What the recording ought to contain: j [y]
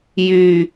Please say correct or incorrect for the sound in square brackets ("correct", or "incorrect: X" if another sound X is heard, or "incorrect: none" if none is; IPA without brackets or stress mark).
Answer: correct